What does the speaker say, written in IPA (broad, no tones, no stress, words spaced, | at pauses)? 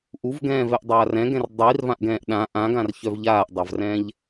ʔuvɡɛ̃ːvɛʔ dˤaːrɛ̃ɡɛ̃r dˤirvãʔɡɛ̃ːʔ ɗã ʔãɡãr çœvʎaːʔdˤavrɛ̃ːʎ